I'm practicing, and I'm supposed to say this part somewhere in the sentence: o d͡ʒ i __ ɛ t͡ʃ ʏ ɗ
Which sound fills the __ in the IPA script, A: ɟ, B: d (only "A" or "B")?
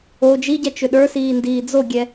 A